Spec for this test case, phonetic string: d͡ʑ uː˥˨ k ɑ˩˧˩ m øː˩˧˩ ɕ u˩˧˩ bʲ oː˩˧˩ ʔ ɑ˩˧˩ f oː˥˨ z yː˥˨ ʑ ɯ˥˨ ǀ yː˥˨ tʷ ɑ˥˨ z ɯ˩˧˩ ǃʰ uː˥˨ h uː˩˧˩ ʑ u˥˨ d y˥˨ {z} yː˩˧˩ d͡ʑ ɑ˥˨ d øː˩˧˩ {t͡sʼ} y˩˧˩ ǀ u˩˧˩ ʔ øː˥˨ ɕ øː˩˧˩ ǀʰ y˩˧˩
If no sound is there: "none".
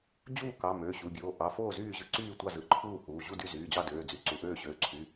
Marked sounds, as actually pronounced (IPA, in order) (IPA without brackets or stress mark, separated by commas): z, d͡z